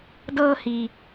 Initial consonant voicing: voiced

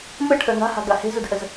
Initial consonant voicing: voiced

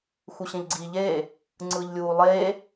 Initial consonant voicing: voiceless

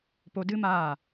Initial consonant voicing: voiceless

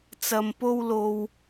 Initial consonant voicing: voiceless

